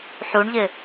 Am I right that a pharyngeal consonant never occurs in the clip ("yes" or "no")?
no